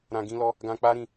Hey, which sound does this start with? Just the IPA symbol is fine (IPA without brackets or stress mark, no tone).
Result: ɾ